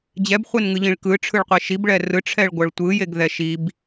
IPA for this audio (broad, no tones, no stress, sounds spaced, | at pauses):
d͡ʑ ɛ b χʷ e n ŋ ɯ ʎ ĩ ɭ k ɯ ʈ͡ʂʰ ɯ ɭ qʷ e ʃ i b ɭ ɛ r ɯ ʈ͡ʂʰ ɛ ɭ ɡʷ ʌ ɭ tʷ ɯ j e ɡ ð ɛ ʃ i b